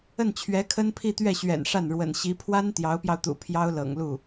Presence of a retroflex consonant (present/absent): present